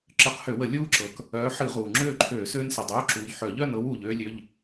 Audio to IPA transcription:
ǁ ɨ˧˩˧ q h ø˧˩˧ w ə˧˩˧ lʲ uː˦ ǁ ɤ˩ k | œː˨˦ ħ ɨ˧˩˧ ʁ uː˩ ŋ͡ǁ øː˥˨ ǃʰ øː˧˩˧ s øː˦ n s ə˩ dˤ øː˩˧˩ ǁ uː˩ ʎ ħ œ˧˩˧ ʎ œ˥˨ n ɤ˨˦ w uː˩ ʎ øː˦ lʲ ø˩˧˩ ʎ

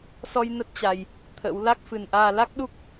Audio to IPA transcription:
s ɔ˧ j n ə˦˥ t̚ t͡ɕ a˨˩ j | t̪ʰ ə̰˧˥ w l a˦˥ k̚ f ɨ˨˩ n ʔ aː˧ l a˦˥ k̚ ɗ u˦˥ k̚

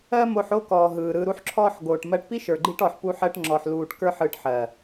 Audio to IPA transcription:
ɜ˦ m o˧ ħ o˦ k ɔː˨ ɦ ɯː˨ ɾ ɯ˧ ɾ u˦ ħ ǁʰ ɔː˦ ħ ɡ oː˨ ʈ m ɜ˧ ʈ p i˦ ʃ ə˞˨ ɡ͡ǃ i˧ ʈ ɔ˨ ħ p u˦ ħ ɜ˦ ʈ ŋ͡ǁ ɔ˧ ħ l uː˧ ʈ k ə˞˦ ħ ɯ˧ ʈ ħ ɜ˨

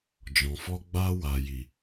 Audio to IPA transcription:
d͡ʒ ɔ̃˨ f ɔ˧ ɡ͡b a˧ w a˨ j i˨

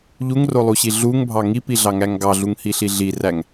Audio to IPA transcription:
ʎ u ŋ r o lˠ u ɕ i ɮ u ŋ bʱ ɑ ŋ i p i ɮ ɑ ŋ æ ŋ ɡ ɑ ɮ u ŋ h i ɬ i ɮ i r æ ŋ

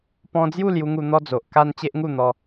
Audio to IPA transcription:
p ɔ̃˧ d͡z j u˥˧ l j u˧ ŋ u˧ n̪ ɔ˦ d͡z o˨ ʔ k a˧ n t͡ɕ e˦ ʔ ŋ u˥˧ n̪ ɔ˧

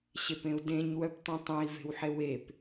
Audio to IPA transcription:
ɕ e p ẽ u̯ d ẽ ɲ w œ p tˤ õ tˤ ẽ i̯ v e̤ w ħ e w e p

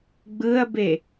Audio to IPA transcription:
ɡ͡b ɯ ɐ̯ b e

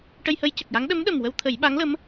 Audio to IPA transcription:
ʈ ə˧ j h ə˧ j c ə˨˩ k̚ j a˧˥ ŋ ɗ ə˧˥ m ɗ ə˨˩ m w ə˧ w t̪ʰ ə˨˩˦ j ɓ a˧˥ ŋ l ə˧˥ m

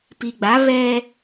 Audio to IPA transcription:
p i˨ ɡ͡b a˨˦ β ɛ˦

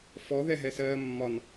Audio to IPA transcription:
f ɔ ð ɛ ɦ ɛ s ɜː mː ɒ n

